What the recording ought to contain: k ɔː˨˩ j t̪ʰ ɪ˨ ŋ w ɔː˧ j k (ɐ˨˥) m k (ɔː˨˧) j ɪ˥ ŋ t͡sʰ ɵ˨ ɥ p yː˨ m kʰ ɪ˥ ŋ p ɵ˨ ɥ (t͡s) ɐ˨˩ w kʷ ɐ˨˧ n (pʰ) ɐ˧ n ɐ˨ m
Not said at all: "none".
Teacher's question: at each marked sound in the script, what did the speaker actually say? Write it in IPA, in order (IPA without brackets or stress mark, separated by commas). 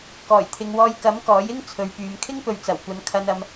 ɐ˨˥, ɔː˨˥, t͡s, kʰ